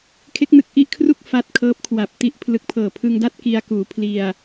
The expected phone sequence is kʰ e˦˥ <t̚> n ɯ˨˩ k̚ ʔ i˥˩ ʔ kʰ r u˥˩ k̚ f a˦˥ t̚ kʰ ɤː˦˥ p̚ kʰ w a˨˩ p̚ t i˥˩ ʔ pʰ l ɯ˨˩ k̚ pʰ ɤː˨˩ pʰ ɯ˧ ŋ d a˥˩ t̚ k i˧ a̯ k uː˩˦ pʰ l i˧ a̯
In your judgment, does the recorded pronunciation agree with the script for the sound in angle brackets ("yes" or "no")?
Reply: no